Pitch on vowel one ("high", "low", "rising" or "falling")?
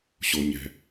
low